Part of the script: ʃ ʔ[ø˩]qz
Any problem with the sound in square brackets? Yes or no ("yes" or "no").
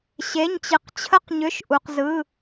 yes